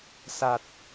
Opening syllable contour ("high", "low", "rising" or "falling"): low